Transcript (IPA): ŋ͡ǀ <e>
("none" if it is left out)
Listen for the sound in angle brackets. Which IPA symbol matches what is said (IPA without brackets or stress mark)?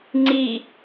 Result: i